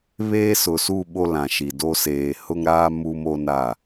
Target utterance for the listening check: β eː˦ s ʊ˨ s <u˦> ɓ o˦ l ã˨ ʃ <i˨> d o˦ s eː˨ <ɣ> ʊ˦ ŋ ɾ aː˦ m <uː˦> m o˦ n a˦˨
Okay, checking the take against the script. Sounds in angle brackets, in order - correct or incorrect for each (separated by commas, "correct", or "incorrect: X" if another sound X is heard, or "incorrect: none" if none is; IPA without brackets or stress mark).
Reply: incorrect: u˦˨, correct, incorrect: h, incorrect: u˦